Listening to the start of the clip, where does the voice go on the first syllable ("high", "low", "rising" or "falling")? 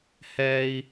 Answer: high